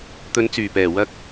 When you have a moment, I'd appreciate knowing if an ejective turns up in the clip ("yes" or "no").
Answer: no